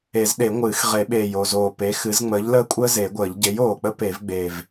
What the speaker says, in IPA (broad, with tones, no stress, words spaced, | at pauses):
e˨˩˦zɗe˨˩˦ŋʷɨː˨˩˦x ʁe˨˩˦ɓeː˨˩jo˨˩zoː˨˩ pe˨˥ xɨ˨˥z ŋ͡məː˨˥ʎləː˥kʷʼəː˥ ze˨˩˦ɡʷəː˨˩˦ʎ ɟe˨˥joː˨˩k͡pə˥ pe˨˩˦vɡ͡be˨˩v